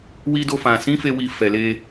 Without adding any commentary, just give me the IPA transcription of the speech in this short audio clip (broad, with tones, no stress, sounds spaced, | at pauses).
w i˧ d o˧ f ã˨ s ĩ˨˦ f e˧ w i˧ f ɛ˨ l e˧